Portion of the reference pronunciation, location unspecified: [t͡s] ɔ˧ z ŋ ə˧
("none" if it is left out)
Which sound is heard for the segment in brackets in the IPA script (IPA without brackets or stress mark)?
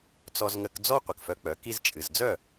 t͡s